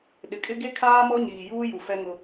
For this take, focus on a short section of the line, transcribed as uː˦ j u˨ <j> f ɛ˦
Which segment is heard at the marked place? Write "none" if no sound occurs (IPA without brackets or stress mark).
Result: none